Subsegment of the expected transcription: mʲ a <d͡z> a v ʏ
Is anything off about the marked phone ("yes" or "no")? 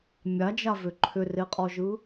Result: yes